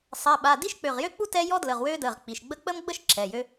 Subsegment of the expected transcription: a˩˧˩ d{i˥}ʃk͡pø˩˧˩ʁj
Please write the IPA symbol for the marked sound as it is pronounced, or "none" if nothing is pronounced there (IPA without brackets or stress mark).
i˥